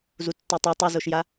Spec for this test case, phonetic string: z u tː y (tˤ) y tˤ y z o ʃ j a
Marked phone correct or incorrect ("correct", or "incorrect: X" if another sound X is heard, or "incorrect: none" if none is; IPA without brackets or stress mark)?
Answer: correct